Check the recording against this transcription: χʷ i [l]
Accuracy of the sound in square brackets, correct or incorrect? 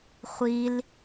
correct